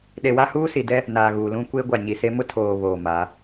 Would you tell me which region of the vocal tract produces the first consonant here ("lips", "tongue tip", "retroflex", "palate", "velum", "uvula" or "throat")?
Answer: tongue tip